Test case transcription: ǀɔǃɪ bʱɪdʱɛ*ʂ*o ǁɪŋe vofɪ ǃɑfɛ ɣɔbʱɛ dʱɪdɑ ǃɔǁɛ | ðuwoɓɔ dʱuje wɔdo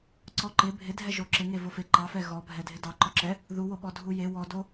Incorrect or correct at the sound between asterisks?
incorrect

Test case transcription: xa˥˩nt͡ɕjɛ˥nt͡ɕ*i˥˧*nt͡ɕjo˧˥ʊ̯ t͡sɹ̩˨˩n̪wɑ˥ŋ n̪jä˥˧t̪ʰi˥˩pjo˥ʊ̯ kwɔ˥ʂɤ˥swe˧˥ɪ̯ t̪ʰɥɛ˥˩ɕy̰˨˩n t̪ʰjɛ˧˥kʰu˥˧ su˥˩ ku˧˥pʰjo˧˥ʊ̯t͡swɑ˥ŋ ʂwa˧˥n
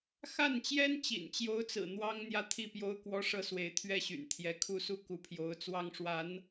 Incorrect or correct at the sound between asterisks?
incorrect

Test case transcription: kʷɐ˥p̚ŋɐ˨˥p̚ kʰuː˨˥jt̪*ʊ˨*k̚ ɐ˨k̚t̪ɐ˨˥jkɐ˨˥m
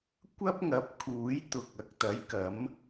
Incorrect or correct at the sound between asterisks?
correct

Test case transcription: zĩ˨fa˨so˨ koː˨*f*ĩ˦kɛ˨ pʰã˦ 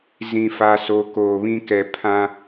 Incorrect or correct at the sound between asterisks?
incorrect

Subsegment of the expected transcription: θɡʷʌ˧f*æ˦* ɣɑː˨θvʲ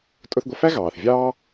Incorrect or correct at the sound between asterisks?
correct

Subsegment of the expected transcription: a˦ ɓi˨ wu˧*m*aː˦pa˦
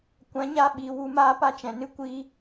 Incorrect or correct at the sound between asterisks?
correct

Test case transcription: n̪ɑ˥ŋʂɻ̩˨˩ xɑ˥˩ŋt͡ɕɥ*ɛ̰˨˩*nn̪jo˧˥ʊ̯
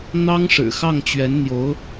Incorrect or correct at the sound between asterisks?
incorrect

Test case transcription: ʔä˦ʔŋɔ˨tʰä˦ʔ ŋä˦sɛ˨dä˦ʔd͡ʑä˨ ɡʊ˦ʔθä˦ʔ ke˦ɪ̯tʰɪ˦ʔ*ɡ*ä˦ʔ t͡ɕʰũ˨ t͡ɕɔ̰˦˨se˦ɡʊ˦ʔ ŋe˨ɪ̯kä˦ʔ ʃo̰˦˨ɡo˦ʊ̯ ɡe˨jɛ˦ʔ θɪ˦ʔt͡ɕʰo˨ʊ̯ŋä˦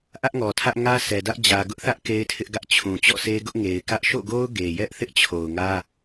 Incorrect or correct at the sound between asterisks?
correct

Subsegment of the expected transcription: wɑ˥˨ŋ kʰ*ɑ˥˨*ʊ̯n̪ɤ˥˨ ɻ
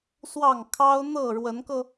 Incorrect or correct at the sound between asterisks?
incorrect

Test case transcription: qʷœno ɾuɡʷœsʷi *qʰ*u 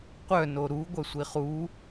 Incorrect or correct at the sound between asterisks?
incorrect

